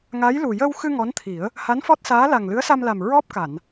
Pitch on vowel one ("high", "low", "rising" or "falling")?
rising